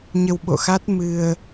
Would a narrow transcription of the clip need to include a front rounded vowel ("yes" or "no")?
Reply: no